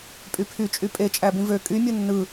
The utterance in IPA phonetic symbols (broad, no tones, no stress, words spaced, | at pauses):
pʼypʰyt͡ʃʼy pʼe t͡ʃʼæbĩvø kʼy mʲɯnːɯ